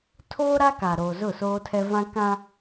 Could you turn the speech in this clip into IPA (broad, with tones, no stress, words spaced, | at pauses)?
tʰoː˦ ɾa˦kaː˨ɾoː˨ zʊ˦˨soː˦tʰɛ˦ vã˦kã˦